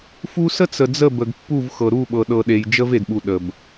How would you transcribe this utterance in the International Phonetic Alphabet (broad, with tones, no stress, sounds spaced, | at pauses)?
f u˦ s ə˦ t͡s ə˨ d͡z ə˦˨ b ə˨ ɡ pː u˦˨ v x ɤ˨ ɾ u˦˨ ɓ ɤ˨ ɗ ɤ˨ ɗ e˨ j d͡ʒ ə˦ v e˨ d ɓ u˨ ɗ ə˨ b